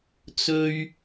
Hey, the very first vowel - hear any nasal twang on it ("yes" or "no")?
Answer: no